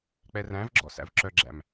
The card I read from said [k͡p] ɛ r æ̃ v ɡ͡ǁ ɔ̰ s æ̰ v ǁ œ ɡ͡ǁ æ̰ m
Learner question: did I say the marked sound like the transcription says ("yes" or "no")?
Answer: yes